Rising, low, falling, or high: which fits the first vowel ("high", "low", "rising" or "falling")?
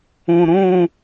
low